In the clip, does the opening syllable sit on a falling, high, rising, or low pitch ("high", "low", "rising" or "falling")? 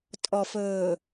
low